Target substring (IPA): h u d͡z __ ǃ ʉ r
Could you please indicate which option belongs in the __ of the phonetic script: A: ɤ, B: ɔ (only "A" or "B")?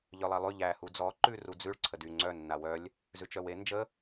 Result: B